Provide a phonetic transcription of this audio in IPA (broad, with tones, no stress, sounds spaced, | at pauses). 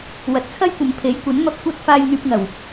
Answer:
w ɐ˨ t̚ t͡sʰ ɐ˥ j kʷ ɐ˨˧ m pʰ e˨˥ j kʷ ɐ˨˥ n m ɐ˧ p̚ kʷ ɐ˥ t̚ f aː˧ j ŋ yː˧ p̚ ŋ ɐ˨˩ w